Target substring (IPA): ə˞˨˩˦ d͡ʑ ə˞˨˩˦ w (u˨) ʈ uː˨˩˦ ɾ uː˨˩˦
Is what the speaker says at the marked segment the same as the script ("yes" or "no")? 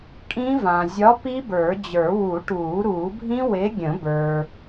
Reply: no